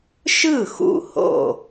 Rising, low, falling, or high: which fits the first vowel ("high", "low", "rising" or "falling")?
falling